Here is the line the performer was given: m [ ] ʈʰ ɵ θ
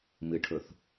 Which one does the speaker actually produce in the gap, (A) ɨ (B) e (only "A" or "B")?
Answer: A